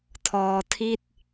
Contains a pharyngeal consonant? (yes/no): no